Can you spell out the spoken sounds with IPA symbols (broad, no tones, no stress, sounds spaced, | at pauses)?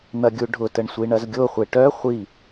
n̪ ɐ ɡʲ u ɖʱ ʊ t ə ɳ sʷ i ɳ ɐ z ɡʲ o χʷ e ʈ œ χʷ i